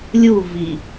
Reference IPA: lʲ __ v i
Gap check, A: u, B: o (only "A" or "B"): A